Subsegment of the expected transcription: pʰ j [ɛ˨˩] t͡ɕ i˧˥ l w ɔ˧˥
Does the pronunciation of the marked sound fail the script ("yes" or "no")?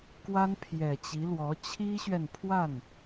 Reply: no